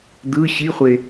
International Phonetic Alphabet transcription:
d̪ ɯ ɕ i χʷ e

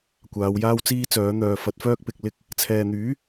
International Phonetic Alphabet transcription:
kʷ aː˨˧ w j aː˥ w t͡s iː˥ t͡s œː˨˥ n̪ œː˨ f ɐ˨˥ t̚ f œː˥ k̚ p ɪ˧ k̚ l ɪ˥ k̚ | t͡sʰ ɛː˨ n̪ yː˨˥

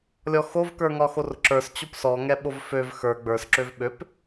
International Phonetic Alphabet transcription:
lʲ ɔ x o v k ə˞ ŋ ɒ x o r ǁ ə˞ s t͡ɕ o p s ɔ ŋ ɛ ɓ o v f ø v x ə˞ ɡ͡b ə˞ s ǁ ø v ɓ ø p

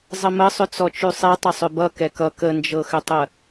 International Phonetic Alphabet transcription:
zˤ ə m ə sˤ ʏ t͡s ɔ t͡ʃ ʉ sˤ e tˤ ə sˤ ʏ b ʌ k ɛ k ʌ k ə n d͡ʒ ɤ x ʏ tˤ ə

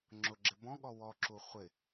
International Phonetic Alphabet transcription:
ŋ͡ǁ ʊ ɡ͡ǁ ɪ b ɔ̃ ɠ ɔ w ɔ ǁ u χʷ ɪ

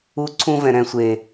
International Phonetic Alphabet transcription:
u˦ ǀʰ ũ˦ v ɛ̃˨ ɾ ɛ̃˦˨ sʷ eː˨

